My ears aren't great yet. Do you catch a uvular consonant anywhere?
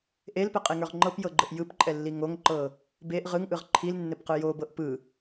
yes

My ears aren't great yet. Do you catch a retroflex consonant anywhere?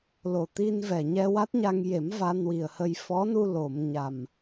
no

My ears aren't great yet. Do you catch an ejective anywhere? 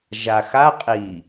yes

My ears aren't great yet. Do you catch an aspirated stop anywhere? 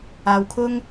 yes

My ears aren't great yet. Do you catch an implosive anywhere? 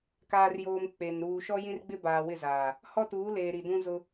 no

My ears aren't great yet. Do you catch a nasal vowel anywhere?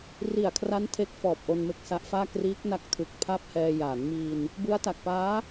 no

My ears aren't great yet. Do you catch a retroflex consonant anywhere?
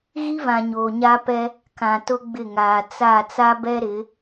no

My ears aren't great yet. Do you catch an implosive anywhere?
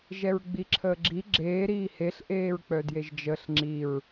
no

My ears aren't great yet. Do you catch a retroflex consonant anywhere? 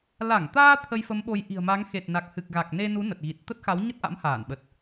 no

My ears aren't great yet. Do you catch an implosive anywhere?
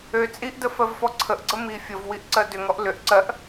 no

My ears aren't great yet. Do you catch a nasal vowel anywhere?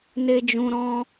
yes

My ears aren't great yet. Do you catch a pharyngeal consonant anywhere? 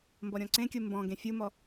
no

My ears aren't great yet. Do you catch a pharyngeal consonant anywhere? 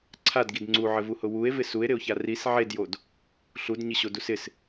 yes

